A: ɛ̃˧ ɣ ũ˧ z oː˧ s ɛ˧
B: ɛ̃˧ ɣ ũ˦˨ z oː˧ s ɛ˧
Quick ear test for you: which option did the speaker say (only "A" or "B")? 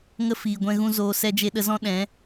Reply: A